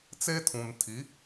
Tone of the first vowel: high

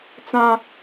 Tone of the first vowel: high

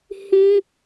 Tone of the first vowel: high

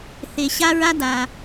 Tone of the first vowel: low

